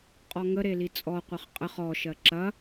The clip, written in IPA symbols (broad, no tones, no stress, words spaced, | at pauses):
qʼɔŋə ɾelit͡sʼɔ qʷɐχqʼəχ ɔ ʃɜǁɐ